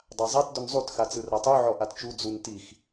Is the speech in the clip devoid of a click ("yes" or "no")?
yes